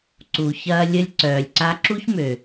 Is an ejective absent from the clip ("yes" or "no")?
yes